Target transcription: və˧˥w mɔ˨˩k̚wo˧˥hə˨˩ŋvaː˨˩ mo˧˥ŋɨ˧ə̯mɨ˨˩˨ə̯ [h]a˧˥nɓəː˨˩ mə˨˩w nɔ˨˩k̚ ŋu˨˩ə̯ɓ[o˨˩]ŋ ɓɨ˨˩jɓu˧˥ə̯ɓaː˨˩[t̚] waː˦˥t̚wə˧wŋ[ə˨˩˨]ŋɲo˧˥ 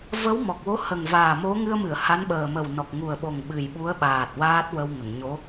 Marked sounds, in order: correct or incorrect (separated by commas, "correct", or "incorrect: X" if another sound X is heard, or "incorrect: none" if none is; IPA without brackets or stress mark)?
correct, correct, correct, correct